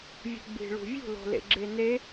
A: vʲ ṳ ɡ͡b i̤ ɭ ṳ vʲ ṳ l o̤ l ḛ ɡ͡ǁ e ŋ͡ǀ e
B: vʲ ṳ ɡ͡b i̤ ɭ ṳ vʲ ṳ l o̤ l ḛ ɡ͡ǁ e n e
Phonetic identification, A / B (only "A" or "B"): B